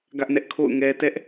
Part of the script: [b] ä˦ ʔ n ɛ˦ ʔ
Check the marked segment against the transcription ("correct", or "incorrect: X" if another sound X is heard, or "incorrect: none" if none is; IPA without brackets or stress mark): incorrect: ɡ